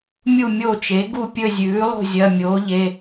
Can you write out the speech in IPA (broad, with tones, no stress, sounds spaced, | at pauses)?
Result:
mʲ u˦˨ mʲ o˦˨ t͡ʃ e˩˥ ɡ u˦˨ pʲ ɵ˦˨ zʲ ʉː˩˥ lˠ o̤˦˨ zʲ ɐ˩˧˩ mʲ oː˩˥ ʎ e˩˧˩